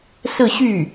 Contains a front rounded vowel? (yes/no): yes